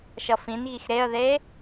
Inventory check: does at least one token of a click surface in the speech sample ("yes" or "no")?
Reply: no